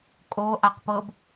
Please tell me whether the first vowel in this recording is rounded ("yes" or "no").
yes